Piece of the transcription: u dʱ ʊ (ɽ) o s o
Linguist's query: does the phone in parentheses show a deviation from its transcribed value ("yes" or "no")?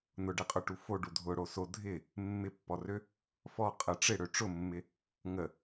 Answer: no